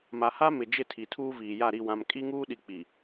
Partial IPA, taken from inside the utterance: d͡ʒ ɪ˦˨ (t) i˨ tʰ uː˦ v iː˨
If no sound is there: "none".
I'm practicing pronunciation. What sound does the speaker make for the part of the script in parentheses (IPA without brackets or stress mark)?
tʰ